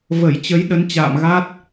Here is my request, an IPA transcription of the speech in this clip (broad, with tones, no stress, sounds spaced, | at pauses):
v ə˧˩ j t͡ɕ ə˨˦ j ɗ ə˨˦ n t͡ɕ a̰ː˧˨ m ɣ a˦˥ t̚